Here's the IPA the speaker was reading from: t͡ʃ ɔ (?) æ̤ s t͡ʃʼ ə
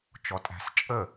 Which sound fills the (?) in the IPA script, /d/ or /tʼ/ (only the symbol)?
tʼ